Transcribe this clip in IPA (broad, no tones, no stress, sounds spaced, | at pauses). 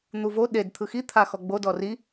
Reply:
n̪ u v o ɗ e d t̪ʰ ɯ x i t̪ʰ a x ɔ ɡ͡b o d ɔ r i